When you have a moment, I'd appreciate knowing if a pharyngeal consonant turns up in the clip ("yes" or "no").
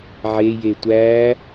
yes